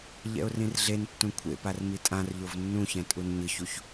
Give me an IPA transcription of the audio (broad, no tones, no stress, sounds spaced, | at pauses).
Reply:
ʎ ɛ̰ ʊ̯ r ĩ r ɮ e n tː ũ kʷʰ ḛ p a r m i tʼ ã r ʎ o v nː ũ ç ɛ̃ tʼ u n ɲ ɯ ç u ç